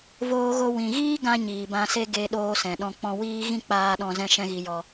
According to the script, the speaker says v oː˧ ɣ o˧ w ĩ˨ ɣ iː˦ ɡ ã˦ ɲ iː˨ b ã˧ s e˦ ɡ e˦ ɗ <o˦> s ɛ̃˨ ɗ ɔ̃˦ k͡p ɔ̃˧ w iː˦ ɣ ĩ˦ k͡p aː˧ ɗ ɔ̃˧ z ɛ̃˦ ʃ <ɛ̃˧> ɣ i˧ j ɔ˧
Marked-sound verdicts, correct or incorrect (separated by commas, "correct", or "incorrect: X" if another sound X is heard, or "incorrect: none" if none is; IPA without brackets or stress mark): incorrect: oː˦, incorrect: ɛ̃˦